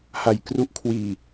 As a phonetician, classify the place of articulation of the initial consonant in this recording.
glottal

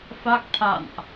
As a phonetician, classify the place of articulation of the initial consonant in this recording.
labial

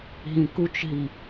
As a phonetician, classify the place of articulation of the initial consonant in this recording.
glottal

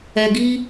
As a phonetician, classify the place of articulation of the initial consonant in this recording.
velar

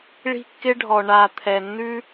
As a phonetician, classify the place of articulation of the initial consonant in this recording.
retroflex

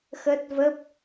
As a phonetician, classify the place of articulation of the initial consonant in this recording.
velar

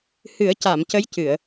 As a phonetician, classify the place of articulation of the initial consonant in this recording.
glottal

